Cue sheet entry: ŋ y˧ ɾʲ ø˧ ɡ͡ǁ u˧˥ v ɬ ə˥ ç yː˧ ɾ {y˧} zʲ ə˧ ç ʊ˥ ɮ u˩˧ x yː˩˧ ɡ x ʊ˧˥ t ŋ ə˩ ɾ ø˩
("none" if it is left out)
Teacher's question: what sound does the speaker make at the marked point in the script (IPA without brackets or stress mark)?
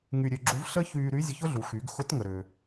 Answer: y˧˥